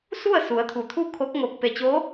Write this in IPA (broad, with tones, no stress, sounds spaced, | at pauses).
s u˥˨ ə̯ s u˩˧ ə̯ t̪ʰ u˩ t̪ʰ u˥˨ kʰ o˧˥ k̚ ŋ o˧˩ k̚ p e˧˩ t͡ɕ o˧˥